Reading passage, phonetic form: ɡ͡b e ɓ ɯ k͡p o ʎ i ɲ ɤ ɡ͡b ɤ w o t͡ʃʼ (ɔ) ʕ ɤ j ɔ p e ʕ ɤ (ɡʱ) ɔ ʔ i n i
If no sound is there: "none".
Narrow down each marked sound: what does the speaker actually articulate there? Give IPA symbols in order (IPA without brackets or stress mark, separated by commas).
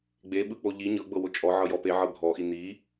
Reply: ɔ, ɡʱ